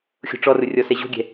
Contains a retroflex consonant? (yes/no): yes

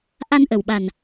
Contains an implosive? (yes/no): yes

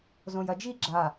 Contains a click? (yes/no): yes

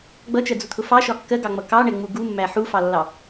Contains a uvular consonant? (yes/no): no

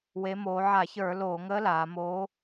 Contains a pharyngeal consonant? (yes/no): yes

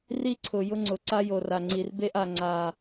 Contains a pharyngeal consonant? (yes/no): no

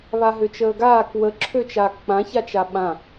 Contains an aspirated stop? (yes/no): yes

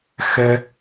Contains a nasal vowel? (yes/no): no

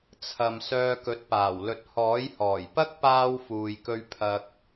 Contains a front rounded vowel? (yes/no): yes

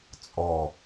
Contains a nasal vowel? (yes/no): no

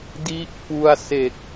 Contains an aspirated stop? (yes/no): no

